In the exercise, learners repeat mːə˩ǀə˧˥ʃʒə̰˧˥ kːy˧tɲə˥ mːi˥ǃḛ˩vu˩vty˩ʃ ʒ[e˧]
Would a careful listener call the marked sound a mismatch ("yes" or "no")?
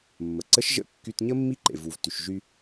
yes